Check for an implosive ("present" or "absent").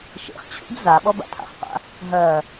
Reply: present